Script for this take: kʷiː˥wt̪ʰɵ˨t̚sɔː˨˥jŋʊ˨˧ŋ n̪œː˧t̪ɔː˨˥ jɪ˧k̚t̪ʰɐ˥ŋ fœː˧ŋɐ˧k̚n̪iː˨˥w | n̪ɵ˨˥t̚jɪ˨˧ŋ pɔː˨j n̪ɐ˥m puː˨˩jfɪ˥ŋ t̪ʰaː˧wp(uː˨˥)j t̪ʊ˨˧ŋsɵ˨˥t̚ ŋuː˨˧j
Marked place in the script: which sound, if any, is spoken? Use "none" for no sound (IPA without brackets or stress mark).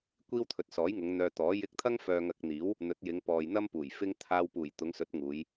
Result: uː˨˩